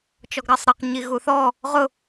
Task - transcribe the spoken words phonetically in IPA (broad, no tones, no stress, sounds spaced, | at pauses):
t͡ʃ ɔ ɡ ɾ ɑ sˤ ɾ ʌ q ɲ i ɣ u θ ɔ | ʁ ʊ